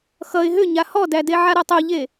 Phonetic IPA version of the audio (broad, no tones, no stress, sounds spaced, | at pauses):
x ʌ ɪ̯ ɦ ʏ ɲ a h ɔ d æ d e ʕ a ɾ ɔ tˤ o ʎ e